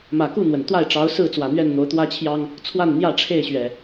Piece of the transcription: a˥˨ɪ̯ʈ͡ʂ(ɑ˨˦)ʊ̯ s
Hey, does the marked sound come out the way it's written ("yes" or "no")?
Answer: yes